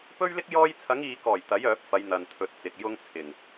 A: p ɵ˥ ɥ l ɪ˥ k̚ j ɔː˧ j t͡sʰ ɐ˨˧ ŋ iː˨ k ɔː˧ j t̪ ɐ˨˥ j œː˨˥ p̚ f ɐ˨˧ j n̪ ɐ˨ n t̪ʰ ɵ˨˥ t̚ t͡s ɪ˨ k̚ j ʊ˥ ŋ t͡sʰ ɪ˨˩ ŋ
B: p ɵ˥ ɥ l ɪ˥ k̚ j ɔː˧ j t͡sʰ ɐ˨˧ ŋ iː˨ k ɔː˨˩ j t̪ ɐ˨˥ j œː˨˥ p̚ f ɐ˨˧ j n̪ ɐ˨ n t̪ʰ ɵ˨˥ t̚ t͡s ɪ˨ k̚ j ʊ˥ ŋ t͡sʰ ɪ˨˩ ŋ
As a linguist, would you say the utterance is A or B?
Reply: B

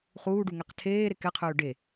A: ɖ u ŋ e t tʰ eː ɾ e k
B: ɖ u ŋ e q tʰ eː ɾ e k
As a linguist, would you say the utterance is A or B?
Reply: B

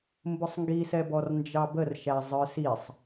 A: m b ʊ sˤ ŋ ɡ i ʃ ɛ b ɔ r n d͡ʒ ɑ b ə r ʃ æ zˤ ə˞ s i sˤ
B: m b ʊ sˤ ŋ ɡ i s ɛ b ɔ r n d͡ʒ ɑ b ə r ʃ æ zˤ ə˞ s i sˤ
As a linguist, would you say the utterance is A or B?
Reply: B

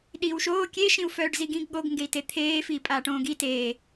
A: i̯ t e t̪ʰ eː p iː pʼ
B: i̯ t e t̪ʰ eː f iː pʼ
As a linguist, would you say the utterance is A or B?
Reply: B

